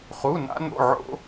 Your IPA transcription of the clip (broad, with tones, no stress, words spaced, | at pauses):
χu˧˥˧na̰˥no̰˧˥˧ ʕo̰˥